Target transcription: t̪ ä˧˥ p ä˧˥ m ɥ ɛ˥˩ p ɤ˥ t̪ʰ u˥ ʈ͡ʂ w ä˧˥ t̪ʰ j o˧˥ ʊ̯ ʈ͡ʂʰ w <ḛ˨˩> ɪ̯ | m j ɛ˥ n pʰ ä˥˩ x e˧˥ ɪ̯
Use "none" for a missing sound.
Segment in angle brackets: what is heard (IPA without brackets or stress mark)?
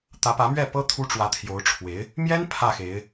e˧˥